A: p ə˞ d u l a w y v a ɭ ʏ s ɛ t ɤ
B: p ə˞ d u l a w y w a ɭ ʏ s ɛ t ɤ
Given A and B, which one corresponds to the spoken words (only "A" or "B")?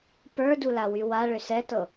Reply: B